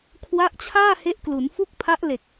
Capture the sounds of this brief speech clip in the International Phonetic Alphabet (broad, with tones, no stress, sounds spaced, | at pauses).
kʰ w a˦˥ ʔ t͡ɕʰ aː˥˩ h e˦˥ ʔ k l u˩˦ n f u˥˩ k̚ pʰ a˦˥ ʔ l e˨˩ k̚